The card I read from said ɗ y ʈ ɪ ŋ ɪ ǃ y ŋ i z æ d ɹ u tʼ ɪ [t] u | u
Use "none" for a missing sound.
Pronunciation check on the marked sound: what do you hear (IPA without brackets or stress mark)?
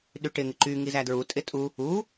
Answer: tʼ